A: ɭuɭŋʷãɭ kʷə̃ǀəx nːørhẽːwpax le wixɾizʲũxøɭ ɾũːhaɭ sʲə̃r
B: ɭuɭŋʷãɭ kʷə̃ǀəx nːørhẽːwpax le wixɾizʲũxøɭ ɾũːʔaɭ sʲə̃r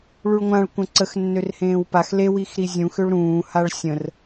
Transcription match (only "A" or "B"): A